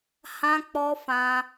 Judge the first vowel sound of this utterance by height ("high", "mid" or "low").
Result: low